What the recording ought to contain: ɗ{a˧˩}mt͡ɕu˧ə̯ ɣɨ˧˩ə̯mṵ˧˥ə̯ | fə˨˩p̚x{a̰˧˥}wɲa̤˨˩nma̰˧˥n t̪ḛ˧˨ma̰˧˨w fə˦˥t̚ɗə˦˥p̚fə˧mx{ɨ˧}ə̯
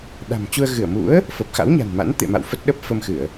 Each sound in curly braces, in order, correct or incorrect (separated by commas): incorrect, correct, incorrect